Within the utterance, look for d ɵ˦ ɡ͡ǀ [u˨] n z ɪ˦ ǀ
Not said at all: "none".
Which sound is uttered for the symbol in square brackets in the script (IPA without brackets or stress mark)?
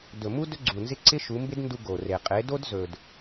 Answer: u˨